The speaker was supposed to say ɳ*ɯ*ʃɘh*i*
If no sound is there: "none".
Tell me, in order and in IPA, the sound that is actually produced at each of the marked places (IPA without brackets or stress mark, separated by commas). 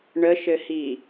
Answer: ə, i